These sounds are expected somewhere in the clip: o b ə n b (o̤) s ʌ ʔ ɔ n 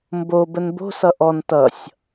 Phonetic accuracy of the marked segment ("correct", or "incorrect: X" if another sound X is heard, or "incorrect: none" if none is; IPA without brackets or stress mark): correct